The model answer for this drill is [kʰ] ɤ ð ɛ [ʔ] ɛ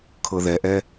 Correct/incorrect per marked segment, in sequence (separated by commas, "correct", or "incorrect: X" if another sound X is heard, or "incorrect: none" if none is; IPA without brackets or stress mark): correct, correct